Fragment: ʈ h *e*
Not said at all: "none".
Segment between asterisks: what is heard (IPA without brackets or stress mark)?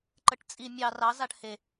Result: e